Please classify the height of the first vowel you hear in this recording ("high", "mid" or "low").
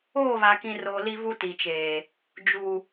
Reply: mid